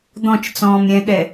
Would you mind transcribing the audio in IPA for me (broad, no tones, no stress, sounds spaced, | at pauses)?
d̪ ɔ̃ t͡ʃ t͡s ɔ̃ː m ɾʲ ɛ̃ ɠ ɛ